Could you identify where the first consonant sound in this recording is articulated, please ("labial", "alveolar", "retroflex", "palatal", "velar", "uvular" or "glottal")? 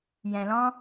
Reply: palatal